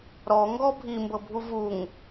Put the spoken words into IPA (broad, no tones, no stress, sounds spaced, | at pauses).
ɾ ɔ ŋ ɡ ɔ bʱ i m b ɤ bʱ u v u ŋ